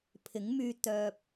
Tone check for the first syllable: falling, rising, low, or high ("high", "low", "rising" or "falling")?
rising